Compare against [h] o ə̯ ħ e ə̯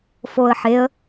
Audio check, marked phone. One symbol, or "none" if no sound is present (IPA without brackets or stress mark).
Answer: f